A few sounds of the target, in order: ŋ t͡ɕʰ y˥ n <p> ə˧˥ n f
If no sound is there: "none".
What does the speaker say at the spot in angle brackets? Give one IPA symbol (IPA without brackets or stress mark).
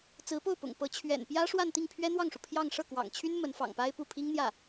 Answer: m